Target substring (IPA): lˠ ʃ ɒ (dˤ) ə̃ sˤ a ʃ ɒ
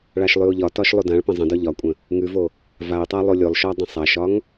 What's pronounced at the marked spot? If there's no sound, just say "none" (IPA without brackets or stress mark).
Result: dˤ